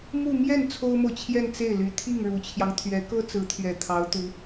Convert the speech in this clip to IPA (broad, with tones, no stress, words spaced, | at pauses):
mu˥˧ mjɛ˥˩n t͡sʰo˥ʊ̯mo˨ʊ̯ t͡ɕʰjɛ˥˧nt͡se˥˩ɪ̯ly˧˥ t̪ʰi˥˩ŋɻu˨˩t͡ɕʰjɑ˦ŋ t̪ʰɥɛ˧˥kɤ˥ t͡sɹ̩˧˥t̪ʰɥɛ˨˩ t̪ʰɑ˧˥ʊ̯ t̪u˧˥